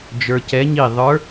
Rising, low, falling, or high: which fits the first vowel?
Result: low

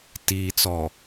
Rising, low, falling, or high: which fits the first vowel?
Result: low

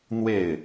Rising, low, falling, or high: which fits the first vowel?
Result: falling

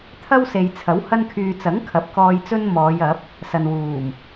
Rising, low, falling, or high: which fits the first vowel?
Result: high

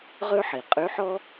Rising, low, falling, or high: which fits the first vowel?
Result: high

